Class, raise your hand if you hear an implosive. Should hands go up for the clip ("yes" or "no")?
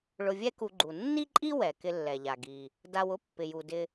no